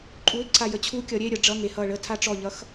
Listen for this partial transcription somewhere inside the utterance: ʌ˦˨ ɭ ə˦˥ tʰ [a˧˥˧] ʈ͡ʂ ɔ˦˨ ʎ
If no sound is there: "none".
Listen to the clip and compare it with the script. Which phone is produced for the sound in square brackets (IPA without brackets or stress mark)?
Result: a˦˥